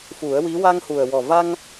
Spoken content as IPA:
f u˨˩˦ ə̯ w i˧˥ w a˧ ŋ h u˨˩ ə̯ w ɔ˨˩ v a˧ ŋ

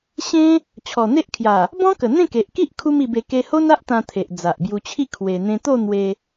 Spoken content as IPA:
ɕ ẽ˦ | t͡ɕʰ ɔ˨˩ n̪ e˦ ʔ kʰ j a˨˩ | b ɔ̃˦ k ə˨˩ n̪ ẽ˥˧ k e˨ ʔ k i˦ ʔ kʰ u˦ m i˧ b e˧ k e˧ h o˦ n a˦ ʔ t̪ ã˧ t̪ʰ e˨ ʔ d͡z a˨ ʔ b j u˧ t͡ɕʰ i˥˧ kʰ w e˧ n̪ ẽ˧ t̪ o˥˧ n̪ w e˧

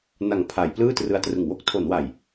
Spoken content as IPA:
n a˨˩ ŋ pʰ a˩˦ j p l ɯː˥˩ t r ɯ˧ a̯ t r ɯ˨˩ ŋ w o˦˥ k̚ tʰ o˩˦ n w a˨˩ j

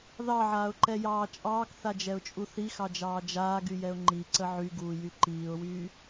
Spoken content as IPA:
ð ɑ ʕ aː ʊ̯ ǃ ɛ j ɑː t͡ʃʼ ɑː k θ a d͡ʒ ɛ ʊ̯ t͡ʃʼ u θ i x ɑ d͡ʒ ɑː d͡ʒ aː ɡ y j ɛ ʊ̯ ŋ͡ǃ i ǀ ə ʕ y ɡ uː j y ǃ iː ʊ̯ w yː

